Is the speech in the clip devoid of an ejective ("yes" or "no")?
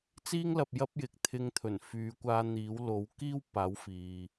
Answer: yes